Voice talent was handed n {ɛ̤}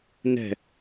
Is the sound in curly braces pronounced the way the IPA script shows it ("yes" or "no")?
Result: yes